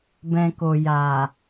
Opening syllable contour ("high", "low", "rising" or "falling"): low